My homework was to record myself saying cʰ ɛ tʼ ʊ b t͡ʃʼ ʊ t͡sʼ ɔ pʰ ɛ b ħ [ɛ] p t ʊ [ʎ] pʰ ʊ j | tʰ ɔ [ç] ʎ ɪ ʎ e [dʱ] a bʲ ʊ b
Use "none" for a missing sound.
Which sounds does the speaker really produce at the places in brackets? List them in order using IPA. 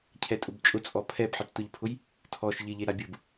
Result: e, ʎ, ʃ, ɾ

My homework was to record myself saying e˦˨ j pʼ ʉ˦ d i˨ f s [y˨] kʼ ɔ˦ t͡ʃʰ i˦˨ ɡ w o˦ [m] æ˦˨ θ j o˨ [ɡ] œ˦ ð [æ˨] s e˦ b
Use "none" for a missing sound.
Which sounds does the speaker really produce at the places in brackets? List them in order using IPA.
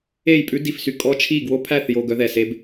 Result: y˨, pʰ, ɡ, ɛ˨

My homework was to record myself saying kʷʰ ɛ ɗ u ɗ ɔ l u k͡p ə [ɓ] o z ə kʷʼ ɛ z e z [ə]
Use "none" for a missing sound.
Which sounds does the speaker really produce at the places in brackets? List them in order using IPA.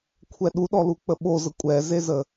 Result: ɓ, ə

